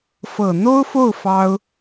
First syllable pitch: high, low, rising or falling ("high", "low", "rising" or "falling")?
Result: low